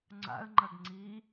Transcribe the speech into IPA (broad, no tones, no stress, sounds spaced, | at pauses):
ŋ͡ǀ a̰ ə̯ ŋ͡ǃ ɐ ɡ ŋ͡ǀ iː